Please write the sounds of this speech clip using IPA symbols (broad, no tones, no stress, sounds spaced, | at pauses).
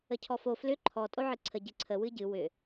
ə cʰ ɔ f o f l ʏ ǃʰ ɔ tʼ o ʕ ɨ ǀʰ ə ɟ ɨ ǀʰ ə w ɨ ɟ ɨ w ʏ